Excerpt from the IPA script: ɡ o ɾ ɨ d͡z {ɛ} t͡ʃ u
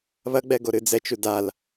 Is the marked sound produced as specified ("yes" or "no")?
yes